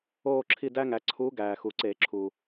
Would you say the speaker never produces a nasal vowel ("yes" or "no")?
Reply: yes